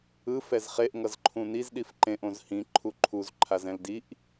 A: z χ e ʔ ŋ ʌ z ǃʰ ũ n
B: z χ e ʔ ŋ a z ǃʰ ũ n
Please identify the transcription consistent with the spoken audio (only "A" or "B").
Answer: A